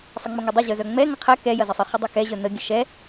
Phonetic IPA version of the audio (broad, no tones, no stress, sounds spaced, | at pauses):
sˤ ə ŋ͡m ʊ ŋ ɛ dˤ ʊ ʑ œ z œ ŋ͡m ɛ ŋ ɐ qʰ ɛ k ɛ j ɐ z ə sˤ ə χ ʊ dˤ ɛ k ɛ ʑ œ n ə ɡʲ ə ʃ ɛ